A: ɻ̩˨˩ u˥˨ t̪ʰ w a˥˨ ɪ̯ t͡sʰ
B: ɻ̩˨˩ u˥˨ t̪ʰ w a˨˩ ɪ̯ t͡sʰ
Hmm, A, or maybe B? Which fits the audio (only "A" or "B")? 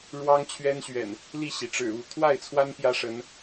A